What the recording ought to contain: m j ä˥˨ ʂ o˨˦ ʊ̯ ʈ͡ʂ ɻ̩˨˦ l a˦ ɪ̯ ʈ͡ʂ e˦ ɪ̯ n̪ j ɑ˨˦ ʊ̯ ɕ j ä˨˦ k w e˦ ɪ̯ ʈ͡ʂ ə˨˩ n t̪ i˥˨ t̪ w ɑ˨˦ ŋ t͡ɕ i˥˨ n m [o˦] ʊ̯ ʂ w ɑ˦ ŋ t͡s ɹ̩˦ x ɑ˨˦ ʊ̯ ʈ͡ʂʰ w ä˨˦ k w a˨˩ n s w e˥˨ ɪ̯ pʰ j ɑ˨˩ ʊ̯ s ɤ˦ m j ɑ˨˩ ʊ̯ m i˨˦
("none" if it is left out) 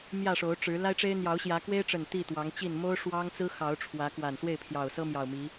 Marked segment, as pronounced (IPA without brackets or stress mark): o˦